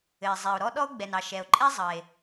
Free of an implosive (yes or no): no